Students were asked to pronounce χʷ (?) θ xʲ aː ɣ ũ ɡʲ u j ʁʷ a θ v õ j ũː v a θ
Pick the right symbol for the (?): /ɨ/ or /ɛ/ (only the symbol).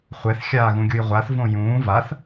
ɛ